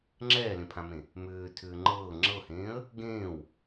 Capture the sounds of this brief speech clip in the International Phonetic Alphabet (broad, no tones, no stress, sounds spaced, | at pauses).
ŋ͡ǁ ɛː l ẽ pʰ ã m ẽ | m ʏː tʰ ʏː ŋ͡ǃ ɤː ŋ͡ǁ ɤ h ẽː ə̯ | ɡ ẽː w